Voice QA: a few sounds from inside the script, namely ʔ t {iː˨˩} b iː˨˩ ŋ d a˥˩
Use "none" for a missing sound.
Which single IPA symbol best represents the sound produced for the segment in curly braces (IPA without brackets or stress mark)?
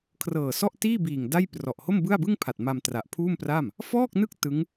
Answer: iː˥˩